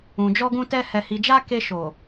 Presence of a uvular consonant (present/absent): absent